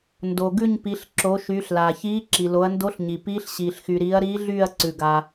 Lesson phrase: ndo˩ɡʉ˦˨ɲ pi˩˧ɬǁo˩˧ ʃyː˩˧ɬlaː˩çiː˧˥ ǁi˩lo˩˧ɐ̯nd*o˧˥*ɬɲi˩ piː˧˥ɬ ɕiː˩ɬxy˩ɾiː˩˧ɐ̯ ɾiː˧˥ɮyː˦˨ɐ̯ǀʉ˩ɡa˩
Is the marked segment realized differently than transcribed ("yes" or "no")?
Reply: no